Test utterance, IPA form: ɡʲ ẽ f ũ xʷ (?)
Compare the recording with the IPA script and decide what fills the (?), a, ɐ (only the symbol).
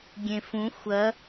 ɐ